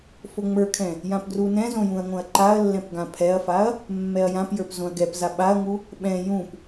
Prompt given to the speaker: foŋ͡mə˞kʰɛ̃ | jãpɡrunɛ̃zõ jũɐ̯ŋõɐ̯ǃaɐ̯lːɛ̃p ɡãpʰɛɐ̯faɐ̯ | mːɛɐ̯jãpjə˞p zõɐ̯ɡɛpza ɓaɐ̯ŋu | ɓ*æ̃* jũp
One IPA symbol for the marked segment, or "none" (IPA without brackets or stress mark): ɛ̃